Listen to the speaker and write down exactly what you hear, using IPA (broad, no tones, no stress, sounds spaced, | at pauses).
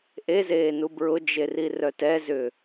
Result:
ʔ e z eː n u b ɹ ʊ d͡ʒ e r i r œ t ɛ z ʏː